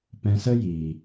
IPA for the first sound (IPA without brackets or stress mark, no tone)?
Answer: p